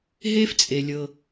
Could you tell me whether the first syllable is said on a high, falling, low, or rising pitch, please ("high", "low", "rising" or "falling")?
high